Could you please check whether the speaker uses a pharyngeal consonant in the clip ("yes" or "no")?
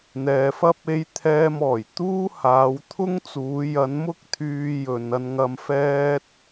no